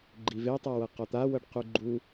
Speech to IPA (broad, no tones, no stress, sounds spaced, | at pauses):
ɡ͡ǃ i v e tˤ a w ɤ q ɔ t̪ a w ɤ ɖ q u ɡ͡ǃ u